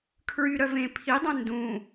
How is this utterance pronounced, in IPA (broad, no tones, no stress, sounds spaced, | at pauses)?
kʰ ɹ y ɾ œ v ẽ pʰ i dˤ œ̃ n d ũ